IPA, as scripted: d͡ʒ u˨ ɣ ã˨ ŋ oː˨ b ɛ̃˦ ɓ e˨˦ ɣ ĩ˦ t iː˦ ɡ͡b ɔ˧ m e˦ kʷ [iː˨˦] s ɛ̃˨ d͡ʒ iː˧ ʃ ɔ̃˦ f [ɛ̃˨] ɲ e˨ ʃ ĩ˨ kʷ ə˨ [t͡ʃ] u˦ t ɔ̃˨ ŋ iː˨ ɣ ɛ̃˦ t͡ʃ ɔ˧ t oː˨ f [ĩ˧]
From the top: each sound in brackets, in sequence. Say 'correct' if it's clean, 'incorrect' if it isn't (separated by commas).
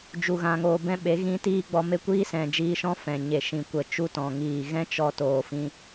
incorrect, correct, correct, correct